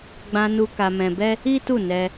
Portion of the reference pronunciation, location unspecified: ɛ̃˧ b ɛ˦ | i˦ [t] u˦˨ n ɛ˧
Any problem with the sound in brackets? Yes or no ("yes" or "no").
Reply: no